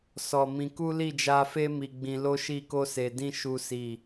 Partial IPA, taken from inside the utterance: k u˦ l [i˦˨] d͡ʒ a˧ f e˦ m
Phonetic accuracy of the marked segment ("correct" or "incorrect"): correct